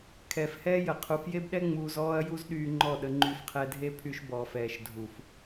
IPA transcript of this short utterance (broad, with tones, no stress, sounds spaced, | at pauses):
kʰ ɛː˨ f h ɛː˦ j ə˨ qʰ u˨ f j e˦ b ɗ ɛ˦ ŋ͡m uː˧ z ɔː˦ ɐ̯ j u˦ z ɗ yː˧ ŋ͡ǃ ɔ˦˨ ɗ ə˧ ŋ͡ǃ y˧ f qʰ ɛ˧ dʱ e˦ pʰ y˧ ʃ b ɔː˨ f ɛː˨ ʃ dʱ u˨ f